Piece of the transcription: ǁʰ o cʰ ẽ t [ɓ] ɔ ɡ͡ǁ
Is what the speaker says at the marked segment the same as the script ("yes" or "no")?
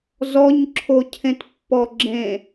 no